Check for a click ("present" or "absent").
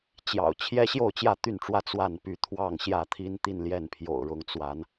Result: absent